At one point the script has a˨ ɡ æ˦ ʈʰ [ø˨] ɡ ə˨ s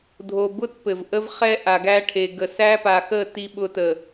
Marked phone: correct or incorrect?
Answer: incorrect